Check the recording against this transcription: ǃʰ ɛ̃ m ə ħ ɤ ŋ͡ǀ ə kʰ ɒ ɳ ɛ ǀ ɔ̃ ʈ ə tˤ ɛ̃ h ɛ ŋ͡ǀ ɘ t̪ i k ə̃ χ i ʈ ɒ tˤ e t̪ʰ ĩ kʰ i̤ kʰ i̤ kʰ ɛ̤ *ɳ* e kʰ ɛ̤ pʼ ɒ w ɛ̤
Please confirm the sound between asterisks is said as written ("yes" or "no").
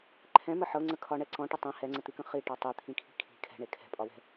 yes